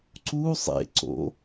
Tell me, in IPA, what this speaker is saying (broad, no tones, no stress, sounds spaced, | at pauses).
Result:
ǀ u sˤ ḛ ǀ o̰